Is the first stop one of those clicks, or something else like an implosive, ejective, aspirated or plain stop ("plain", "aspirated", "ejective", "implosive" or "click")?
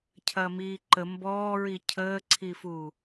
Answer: aspirated